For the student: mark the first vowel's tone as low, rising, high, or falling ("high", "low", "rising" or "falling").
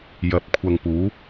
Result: rising